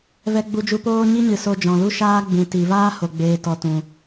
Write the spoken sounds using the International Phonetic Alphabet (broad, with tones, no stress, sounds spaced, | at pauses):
v ɛ˧ ɡ͡b u˧ d͡ʒ u˧ p oː˦ ɲ i˦ ɲ ɨ˨ s o˧ d͡ʒ ɔ̃˨ l u˦ ʃ aː˦ ɡ͡b ĩ˨ t i˨ v aː˦ h o˧ ɡ͡b eː˧ t ɔ˧ t ũ˨